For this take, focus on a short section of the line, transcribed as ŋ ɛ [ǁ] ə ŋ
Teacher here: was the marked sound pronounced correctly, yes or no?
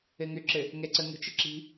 no